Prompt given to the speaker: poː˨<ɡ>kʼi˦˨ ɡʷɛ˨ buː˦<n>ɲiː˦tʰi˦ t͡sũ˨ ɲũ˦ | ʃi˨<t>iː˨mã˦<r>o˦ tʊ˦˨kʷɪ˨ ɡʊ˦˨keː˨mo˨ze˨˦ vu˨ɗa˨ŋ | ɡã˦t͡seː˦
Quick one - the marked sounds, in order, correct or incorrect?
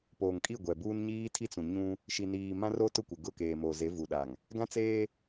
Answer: incorrect: ŋ, correct, incorrect: n, correct

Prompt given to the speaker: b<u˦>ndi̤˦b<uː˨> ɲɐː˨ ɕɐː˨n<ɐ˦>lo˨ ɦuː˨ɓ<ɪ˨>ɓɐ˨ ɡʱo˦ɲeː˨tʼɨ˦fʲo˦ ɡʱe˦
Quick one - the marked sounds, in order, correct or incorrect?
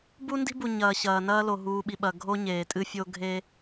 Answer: correct, incorrect: u˨, incorrect: ɐː˦, incorrect: i˨

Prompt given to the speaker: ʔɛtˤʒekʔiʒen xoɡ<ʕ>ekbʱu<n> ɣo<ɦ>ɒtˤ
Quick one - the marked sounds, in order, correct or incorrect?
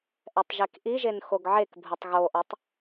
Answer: correct, incorrect: tˤ, incorrect: ʔ

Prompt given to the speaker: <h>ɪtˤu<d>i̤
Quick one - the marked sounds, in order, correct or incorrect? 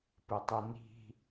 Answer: incorrect: p, incorrect: n

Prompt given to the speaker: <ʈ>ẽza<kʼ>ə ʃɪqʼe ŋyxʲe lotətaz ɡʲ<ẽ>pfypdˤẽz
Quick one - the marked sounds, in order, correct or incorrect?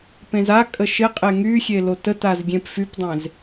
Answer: incorrect: p, correct, correct

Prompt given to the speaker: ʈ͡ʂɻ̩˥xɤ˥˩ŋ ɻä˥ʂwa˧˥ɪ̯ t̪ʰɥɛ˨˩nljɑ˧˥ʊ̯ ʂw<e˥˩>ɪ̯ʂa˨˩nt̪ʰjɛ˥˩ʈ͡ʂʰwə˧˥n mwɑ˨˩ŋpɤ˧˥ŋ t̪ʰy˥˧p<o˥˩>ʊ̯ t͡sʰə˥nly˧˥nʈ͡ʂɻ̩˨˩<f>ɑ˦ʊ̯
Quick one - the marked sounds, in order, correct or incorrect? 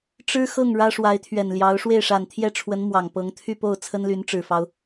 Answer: correct, correct, correct

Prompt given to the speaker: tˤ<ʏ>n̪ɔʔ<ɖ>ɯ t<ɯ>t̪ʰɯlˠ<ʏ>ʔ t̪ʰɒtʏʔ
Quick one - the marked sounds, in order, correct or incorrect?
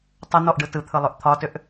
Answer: incorrect: ə, correct, correct, correct

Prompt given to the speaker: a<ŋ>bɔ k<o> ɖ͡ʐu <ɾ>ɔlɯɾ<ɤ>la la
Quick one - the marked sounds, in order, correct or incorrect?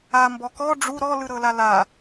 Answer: incorrect: m, incorrect: ɔ, correct, correct

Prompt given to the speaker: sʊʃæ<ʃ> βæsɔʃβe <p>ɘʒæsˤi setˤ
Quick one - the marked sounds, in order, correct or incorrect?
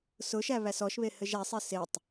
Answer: incorrect: none, incorrect: h

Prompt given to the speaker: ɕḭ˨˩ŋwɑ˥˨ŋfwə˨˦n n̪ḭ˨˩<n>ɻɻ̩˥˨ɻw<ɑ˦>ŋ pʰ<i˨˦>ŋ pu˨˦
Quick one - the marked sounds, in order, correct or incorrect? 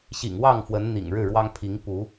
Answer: incorrect: ŋ, correct, correct

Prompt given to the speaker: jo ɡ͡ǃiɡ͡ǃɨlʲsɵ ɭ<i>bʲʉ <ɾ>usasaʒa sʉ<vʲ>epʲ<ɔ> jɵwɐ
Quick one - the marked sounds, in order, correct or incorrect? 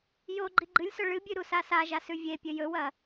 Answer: incorrect: ɨ, correct, correct, incorrect: ɵ

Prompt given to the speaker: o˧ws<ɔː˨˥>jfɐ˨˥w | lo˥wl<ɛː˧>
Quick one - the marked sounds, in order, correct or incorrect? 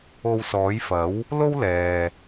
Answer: correct, incorrect: ɛː˨

